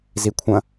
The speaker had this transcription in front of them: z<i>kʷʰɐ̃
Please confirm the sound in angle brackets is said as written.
yes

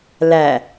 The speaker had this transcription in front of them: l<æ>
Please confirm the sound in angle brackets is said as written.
yes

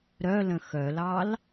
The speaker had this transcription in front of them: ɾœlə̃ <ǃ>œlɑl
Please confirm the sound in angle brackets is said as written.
no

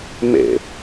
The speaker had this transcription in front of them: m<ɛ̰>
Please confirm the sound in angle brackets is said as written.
no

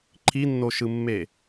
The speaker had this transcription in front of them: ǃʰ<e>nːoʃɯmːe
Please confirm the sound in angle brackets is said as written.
no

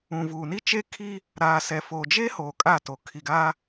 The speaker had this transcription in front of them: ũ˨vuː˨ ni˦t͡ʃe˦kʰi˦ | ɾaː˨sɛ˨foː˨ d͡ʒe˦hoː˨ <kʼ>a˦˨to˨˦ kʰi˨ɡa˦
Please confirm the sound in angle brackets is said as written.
yes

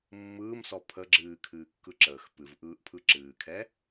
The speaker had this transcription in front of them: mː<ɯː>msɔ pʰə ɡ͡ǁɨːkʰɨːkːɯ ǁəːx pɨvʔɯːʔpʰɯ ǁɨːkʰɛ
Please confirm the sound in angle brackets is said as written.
yes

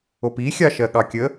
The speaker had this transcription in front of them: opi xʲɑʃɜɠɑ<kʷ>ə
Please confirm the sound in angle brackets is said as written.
no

